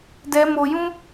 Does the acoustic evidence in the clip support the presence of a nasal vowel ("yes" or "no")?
yes